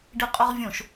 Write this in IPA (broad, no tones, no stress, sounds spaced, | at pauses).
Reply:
ɖ i qʼ ɔ ʁ vʲ õ ʃ